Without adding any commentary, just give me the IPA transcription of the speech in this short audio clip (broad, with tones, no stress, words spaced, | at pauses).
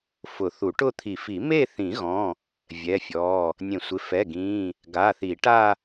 fʊ˨˩˦θu˨˩˦ʈʊ˥˧ t̪ʰi˨˩˦fi˨˩˦ me˥˧ θĩ˨˩˦ɣɔ̃˩˧˩ | vʲɛ˩˧˩fʲɔ˩˧˩ | nʲẽ˨˩˦sʷɪ˩˧˩fɛ˩˧˩ ɡĩ˩˧˩ | ɡa˩˧˩θi˨˩˦ʈa˥˧